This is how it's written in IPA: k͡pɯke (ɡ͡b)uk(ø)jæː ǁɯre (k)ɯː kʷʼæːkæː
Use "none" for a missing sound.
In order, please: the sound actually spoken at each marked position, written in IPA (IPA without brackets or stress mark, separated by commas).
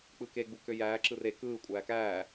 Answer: ɡ͡b, ø, k